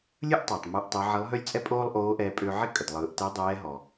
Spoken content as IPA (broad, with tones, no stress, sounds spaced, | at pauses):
lʲ ɯ˥ ʔ tˤ ø˩ tˤ m ɯ˧ ʔ tˤ ɪ˧˥ ʕ ɪ˧˥ lˠ ɦ ø˥ lʲ t͡sʼ ɛ˥ pʼ oː˥ lˠ ʔ oː˧˥ ʔ ɛː˧ pʼ ø˧ ʕ ɪ˥ kʼ ə˩ d lˠ ɯː˩˧ ʔ t ɛ˧˥ dˤ ɛː˧˥ ɦ ɔ˩